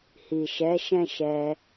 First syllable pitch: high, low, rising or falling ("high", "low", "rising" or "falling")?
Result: low